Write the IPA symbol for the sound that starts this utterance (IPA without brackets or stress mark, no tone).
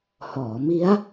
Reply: h